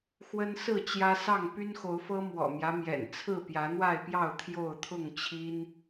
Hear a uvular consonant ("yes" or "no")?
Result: no